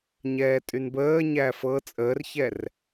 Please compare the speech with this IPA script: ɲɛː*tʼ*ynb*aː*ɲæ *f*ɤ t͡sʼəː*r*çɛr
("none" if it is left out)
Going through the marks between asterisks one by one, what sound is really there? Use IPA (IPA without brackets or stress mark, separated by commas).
tʼ, əː, f, r